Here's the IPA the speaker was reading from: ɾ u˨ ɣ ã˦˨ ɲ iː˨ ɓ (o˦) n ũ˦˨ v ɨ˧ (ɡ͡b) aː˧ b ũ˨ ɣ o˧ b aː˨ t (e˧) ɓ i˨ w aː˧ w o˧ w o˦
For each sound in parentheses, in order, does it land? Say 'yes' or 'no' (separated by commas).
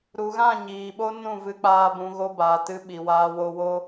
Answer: yes, no, no